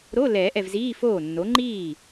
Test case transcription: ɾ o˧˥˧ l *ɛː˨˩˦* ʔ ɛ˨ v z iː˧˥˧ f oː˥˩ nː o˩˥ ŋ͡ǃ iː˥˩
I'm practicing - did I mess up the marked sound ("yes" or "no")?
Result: no